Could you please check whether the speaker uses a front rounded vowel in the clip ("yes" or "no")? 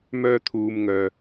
yes